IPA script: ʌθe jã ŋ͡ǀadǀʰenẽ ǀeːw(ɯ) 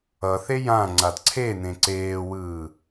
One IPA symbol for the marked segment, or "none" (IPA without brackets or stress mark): ɯː